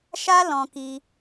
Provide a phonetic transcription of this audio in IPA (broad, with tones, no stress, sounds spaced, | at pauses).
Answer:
ʃ a˦ l ɔ̃˦ k i˦